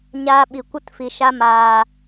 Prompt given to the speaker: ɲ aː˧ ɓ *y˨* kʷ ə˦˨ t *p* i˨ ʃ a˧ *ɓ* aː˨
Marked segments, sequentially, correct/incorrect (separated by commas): incorrect, incorrect, incorrect